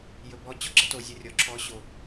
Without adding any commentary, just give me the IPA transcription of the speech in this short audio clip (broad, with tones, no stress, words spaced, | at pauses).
jɵ˨bɔ˧ t͡ɕɔ˦ɡ͡ǁɘ˦ to˨zʲɵ˧ rʲɔ˨ ǁʰɔ˨˦ɕo˨